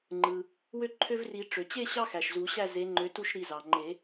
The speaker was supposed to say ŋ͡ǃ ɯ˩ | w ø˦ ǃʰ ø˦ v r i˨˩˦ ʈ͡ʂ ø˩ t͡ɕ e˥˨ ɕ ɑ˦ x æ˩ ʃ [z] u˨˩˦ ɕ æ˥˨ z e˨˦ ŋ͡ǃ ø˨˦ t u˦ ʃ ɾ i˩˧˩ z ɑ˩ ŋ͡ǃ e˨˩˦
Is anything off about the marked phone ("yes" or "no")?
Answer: no